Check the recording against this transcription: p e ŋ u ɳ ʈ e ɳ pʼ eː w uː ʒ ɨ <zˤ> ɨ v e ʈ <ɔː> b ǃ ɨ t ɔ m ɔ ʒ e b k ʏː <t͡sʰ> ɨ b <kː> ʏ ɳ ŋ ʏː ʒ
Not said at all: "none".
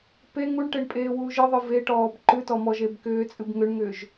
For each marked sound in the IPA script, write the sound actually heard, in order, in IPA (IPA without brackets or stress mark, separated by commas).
ðˤ, ɔː, t͡sʼ, ŋ